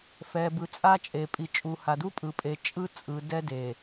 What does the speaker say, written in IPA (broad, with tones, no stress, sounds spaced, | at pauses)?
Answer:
f ɛ˨ b ɯ˨ t͡sʼ a˦ t͡ʃʼ e˨ pʼ i˨ t͡ʃʼ u˨ h a˨ d u˦ pʼ ɯ˨ pʼ e˨ t͡ʃʼ ɯ˦ t͡sʼ ɯ˨ d ɛ˦ d e˨